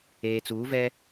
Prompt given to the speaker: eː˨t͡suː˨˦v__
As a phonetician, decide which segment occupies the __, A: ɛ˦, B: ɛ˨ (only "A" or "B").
A